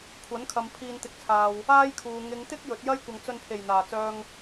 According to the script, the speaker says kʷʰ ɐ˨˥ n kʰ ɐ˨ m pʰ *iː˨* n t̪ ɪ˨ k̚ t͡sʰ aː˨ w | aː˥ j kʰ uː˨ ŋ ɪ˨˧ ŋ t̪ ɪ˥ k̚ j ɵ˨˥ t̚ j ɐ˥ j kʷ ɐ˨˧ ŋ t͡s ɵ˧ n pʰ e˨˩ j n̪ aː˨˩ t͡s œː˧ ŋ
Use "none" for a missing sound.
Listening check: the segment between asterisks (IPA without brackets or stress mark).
iː˨